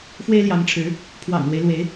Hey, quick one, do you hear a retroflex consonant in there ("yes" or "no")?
yes